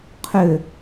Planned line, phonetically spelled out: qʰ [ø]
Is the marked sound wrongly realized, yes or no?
no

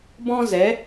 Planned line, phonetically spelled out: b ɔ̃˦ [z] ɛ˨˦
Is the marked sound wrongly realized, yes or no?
no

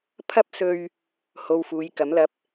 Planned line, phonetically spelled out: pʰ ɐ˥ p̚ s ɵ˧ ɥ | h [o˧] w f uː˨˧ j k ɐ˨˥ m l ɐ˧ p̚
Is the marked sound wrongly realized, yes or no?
no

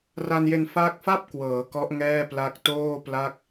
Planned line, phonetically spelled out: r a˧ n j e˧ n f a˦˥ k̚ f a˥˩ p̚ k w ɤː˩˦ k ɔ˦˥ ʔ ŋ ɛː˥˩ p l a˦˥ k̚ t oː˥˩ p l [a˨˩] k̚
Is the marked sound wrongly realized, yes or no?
yes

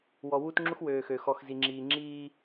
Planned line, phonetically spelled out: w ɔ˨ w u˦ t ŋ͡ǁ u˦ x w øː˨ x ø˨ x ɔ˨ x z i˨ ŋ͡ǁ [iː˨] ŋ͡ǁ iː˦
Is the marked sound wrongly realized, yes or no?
no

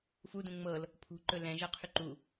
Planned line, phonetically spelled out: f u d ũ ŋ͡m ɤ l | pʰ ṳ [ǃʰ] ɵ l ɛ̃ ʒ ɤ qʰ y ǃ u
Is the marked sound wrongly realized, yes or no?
yes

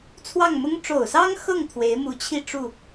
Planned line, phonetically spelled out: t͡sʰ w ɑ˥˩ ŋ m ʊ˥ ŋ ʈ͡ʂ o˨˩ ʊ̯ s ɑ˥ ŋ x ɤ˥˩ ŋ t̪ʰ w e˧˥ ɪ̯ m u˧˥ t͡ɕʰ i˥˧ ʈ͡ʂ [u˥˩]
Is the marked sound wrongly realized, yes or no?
no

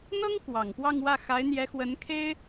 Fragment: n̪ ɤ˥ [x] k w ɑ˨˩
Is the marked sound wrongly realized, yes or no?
yes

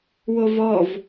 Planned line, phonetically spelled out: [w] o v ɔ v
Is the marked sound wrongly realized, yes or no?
no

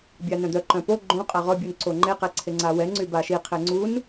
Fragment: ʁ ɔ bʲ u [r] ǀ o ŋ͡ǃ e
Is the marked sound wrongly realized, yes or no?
yes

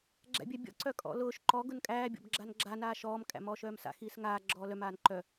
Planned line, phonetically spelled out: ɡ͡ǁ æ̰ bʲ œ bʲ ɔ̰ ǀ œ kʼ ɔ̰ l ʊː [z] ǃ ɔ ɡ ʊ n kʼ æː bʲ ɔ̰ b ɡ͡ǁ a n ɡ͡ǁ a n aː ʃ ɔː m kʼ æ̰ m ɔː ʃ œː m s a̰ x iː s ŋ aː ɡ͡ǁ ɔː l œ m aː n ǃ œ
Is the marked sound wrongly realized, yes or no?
yes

